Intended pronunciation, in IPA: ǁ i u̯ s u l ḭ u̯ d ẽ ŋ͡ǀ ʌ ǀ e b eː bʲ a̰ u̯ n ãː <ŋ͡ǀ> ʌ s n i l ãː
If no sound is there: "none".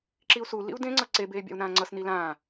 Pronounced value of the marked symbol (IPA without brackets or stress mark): ŋ͡ǀ